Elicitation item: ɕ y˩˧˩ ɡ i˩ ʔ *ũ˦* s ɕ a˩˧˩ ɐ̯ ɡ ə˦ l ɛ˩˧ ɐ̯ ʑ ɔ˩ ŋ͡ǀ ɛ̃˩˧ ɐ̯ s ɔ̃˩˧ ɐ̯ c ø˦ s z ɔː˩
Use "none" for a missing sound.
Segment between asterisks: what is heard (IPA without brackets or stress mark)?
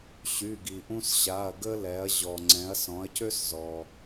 ũ˦